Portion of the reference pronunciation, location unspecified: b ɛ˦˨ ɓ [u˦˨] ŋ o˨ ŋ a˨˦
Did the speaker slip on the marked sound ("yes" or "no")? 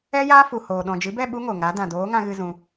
yes